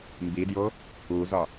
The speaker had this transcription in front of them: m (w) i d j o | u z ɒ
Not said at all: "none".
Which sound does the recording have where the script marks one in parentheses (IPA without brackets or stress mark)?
b